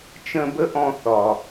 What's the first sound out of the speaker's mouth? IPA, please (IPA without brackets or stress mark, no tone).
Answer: t͡ʃ